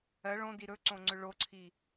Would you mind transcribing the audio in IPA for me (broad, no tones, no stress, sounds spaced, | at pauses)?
ɜ ɭ õ d i ɾ ɵ ǀ õ ŋ͡ǀ ʏ ɭ o ǀʰ i